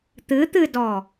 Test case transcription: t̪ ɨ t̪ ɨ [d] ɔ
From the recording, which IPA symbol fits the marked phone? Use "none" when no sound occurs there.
d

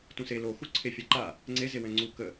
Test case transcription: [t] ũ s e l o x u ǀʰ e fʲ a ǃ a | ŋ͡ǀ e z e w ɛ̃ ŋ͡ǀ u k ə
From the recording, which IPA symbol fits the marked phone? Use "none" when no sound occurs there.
t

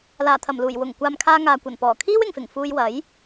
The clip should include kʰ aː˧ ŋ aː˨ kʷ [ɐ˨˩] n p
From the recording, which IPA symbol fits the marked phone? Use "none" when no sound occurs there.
ɐ˨˩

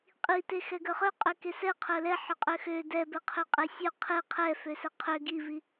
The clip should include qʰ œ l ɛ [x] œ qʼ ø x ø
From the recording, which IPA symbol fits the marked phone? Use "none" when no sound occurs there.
ħ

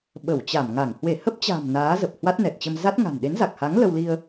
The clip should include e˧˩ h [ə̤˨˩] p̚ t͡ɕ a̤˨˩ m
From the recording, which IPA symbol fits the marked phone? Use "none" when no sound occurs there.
ə˦˥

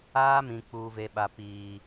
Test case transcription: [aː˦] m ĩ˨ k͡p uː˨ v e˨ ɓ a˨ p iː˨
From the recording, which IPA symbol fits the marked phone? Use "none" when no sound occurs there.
aː˦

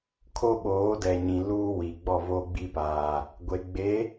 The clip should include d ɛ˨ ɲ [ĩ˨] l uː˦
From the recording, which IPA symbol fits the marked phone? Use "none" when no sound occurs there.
ĩ˨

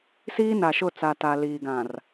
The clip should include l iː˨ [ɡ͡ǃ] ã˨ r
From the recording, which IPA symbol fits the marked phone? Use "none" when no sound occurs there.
ɡ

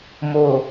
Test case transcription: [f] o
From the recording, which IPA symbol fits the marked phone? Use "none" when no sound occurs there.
m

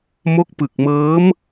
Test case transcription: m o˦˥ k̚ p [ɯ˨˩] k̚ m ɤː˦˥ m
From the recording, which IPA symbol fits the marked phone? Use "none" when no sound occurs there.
ɯ˨˩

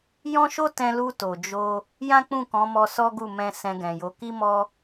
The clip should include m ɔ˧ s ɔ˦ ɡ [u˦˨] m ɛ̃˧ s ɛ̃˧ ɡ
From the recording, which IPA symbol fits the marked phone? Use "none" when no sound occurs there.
u˦˨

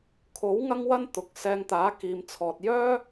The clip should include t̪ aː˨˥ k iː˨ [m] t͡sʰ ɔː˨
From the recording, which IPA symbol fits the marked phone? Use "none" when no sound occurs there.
m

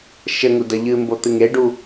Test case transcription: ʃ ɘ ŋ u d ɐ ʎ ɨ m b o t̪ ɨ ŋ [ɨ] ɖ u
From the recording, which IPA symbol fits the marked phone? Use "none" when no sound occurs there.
e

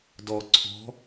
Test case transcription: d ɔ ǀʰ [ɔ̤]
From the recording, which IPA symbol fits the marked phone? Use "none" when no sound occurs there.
ɔ̤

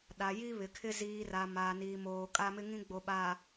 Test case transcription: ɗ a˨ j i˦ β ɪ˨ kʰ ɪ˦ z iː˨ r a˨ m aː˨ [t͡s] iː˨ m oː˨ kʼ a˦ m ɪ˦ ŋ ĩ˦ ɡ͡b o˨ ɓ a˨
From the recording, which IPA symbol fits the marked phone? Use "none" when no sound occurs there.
n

